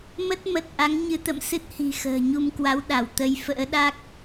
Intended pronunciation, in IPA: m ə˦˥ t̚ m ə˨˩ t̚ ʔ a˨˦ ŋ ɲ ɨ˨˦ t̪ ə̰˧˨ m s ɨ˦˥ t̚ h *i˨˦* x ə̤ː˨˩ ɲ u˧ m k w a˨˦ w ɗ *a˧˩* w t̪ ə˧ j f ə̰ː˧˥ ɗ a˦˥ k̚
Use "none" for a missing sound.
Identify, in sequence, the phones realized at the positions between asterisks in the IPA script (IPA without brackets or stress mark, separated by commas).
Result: i̤˨˩, a˧˩